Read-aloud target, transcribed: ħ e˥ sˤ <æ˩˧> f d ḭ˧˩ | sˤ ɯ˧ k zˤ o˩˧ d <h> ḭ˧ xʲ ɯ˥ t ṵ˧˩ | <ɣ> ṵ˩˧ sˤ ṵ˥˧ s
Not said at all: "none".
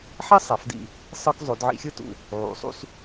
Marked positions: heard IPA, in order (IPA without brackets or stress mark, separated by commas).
æ˩˧, ʕ, ʕ